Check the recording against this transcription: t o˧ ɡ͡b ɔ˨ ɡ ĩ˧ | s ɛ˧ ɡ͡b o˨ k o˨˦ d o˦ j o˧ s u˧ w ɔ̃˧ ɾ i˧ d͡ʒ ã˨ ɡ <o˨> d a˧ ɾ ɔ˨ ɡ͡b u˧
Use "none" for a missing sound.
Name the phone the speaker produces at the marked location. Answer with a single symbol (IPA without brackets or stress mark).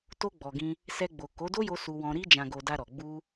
o˨